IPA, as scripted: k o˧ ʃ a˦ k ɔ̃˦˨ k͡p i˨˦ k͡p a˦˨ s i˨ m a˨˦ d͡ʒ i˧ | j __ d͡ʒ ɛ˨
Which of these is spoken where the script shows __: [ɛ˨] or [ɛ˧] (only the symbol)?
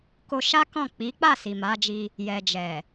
ɛ˨